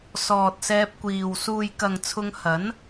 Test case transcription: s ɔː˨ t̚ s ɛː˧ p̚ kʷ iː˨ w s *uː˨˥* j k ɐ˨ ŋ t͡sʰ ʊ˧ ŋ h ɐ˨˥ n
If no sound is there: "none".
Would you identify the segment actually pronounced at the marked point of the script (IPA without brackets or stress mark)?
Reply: uː˨